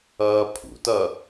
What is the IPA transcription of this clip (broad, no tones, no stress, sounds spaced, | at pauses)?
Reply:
ʌː pʰ ṵ t ʌ